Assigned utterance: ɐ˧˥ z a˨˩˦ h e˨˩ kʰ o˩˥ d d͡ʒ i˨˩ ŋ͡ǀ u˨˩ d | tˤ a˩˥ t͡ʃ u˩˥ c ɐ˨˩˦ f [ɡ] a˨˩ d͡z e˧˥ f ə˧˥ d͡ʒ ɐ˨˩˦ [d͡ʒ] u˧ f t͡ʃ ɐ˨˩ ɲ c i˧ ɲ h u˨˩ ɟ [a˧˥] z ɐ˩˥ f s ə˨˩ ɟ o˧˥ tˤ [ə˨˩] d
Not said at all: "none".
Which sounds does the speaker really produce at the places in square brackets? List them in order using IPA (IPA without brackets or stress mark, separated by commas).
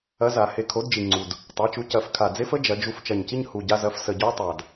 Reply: kʰ, d͡ʒ, a˧, a˨˩